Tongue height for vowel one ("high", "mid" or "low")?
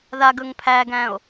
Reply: low